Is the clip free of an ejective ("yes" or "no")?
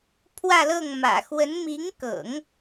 yes